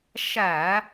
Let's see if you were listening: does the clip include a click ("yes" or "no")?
no